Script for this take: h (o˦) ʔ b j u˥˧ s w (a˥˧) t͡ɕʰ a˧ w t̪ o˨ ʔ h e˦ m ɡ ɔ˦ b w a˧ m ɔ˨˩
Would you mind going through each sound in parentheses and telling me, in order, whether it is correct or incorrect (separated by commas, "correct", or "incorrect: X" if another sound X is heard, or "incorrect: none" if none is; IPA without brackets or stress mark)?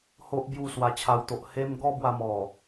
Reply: correct, incorrect: a˧